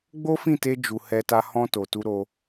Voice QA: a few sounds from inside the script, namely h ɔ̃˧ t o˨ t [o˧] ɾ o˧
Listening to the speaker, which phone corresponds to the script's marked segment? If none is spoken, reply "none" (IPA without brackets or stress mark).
u˧